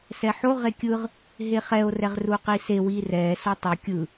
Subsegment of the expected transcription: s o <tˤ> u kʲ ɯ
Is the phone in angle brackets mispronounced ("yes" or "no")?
no